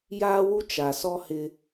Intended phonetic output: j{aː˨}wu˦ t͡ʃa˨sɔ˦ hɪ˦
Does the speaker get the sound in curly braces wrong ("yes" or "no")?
yes